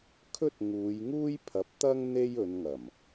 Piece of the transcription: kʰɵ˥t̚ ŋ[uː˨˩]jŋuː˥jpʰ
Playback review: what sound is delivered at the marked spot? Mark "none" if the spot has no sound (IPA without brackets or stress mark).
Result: uː˨˧